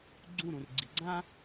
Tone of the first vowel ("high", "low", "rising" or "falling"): falling